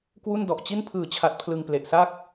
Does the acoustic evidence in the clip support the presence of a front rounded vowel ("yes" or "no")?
no